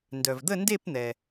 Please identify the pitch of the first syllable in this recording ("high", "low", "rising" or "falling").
low